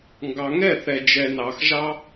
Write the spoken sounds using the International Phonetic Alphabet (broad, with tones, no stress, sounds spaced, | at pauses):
ŋ ɡ ɑ˨ ŋ ɛ˦˨ θ ɛ˨ d͡ʒ ɛ˨ n ɑ˨ x ʒ ɑ˦